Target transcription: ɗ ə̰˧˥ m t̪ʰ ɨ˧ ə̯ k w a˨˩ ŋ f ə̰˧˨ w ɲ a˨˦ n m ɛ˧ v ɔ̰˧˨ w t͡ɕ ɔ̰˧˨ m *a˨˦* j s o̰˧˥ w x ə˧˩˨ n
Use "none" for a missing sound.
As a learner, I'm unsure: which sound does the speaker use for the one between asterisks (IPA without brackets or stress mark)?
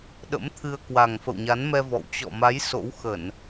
a˨˦